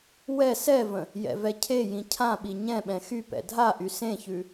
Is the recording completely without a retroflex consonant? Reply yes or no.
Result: yes